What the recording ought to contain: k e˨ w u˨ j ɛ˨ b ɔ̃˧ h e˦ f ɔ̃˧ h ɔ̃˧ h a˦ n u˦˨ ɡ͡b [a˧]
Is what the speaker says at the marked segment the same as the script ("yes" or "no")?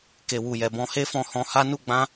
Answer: no